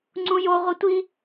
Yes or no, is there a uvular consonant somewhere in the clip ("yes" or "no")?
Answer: yes